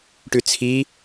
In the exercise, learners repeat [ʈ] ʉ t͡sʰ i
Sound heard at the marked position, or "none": ʈ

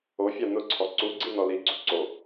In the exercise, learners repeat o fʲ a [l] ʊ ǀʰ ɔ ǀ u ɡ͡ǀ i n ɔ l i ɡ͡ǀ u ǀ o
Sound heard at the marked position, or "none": n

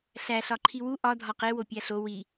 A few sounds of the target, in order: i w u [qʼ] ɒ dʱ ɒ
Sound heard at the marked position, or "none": ʔ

